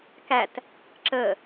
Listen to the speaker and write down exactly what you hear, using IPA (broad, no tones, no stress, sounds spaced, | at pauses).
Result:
k æ t | ǁ ə